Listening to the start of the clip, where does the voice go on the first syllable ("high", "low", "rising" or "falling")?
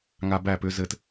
high